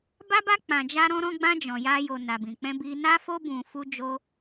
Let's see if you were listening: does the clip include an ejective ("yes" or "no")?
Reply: no